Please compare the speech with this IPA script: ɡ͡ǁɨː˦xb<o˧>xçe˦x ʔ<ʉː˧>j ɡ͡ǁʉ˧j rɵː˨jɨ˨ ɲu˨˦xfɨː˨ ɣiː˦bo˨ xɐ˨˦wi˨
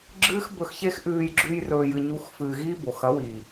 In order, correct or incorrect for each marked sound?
incorrect: ɵ˧, correct

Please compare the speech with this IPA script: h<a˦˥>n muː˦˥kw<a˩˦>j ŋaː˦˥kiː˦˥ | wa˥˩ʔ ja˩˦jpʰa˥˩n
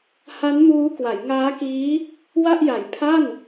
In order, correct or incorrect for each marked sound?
correct, correct

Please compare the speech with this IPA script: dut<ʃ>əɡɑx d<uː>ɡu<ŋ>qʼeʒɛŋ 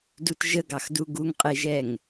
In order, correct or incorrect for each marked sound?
incorrect: ʒ, incorrect: u, correct

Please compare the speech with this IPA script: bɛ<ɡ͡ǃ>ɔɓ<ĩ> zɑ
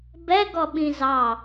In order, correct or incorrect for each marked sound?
incorrect: ɡ, correct

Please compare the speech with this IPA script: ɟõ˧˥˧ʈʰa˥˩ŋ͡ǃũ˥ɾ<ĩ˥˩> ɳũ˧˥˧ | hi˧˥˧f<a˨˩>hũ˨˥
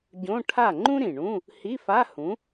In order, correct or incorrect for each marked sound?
incorrect: ĩ˨˩, incorrect: a˧˥˧

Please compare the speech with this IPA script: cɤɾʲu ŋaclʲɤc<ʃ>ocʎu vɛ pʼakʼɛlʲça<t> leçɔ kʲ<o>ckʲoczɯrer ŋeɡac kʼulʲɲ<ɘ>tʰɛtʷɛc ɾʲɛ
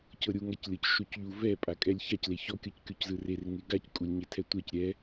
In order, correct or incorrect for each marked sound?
correct, incorrect: c, incorrect: ɤ, incorrect: e

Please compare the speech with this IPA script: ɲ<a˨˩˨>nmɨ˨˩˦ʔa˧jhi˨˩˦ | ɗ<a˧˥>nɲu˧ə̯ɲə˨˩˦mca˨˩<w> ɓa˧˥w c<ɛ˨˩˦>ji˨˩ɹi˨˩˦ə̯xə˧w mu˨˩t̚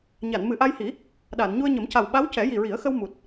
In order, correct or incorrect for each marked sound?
correct, incorrect: a˨˩˨, correct, correct

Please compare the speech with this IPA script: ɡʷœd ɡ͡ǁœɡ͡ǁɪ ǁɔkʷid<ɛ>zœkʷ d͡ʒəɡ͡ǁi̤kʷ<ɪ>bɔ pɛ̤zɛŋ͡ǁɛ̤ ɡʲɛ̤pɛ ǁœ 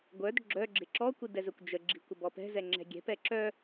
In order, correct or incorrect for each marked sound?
correct, incorrect: ə

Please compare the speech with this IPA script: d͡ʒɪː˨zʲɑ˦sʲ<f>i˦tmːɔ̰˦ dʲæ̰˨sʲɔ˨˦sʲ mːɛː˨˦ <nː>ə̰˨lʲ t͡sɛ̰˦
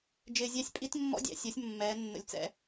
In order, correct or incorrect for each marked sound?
incorrect: pʼ, correct

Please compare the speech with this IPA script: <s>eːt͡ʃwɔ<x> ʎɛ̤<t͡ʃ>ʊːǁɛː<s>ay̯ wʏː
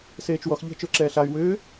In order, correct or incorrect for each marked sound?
correct, correct, correct, incorrect: ɬ

